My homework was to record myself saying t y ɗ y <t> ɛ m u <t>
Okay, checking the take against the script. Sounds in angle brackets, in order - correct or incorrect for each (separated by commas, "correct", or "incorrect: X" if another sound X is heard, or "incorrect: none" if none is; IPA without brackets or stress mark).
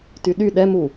incorrect: ɗ, incorrect: none